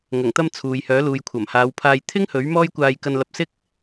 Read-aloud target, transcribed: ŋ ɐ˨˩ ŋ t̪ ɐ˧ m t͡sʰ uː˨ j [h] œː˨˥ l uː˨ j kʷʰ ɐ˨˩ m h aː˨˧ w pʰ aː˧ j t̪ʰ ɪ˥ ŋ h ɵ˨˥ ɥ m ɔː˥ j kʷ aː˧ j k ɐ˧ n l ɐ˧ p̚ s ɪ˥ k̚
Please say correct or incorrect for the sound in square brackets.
correct